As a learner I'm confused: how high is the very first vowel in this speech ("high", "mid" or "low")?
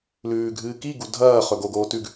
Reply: high